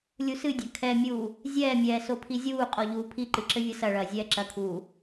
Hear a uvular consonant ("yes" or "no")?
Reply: yes